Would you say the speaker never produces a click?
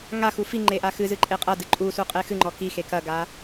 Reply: no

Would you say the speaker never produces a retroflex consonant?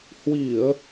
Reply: yes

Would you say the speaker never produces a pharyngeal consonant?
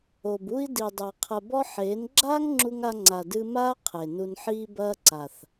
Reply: no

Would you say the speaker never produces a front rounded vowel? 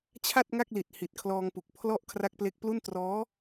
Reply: yes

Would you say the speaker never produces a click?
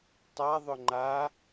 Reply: no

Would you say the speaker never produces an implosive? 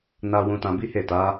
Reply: yes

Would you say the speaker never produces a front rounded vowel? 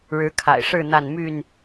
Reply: no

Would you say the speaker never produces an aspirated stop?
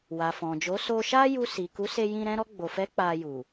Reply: yes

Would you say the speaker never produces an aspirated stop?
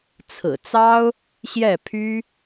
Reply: no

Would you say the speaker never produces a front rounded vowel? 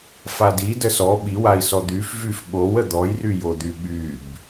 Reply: no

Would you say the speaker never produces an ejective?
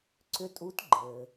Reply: no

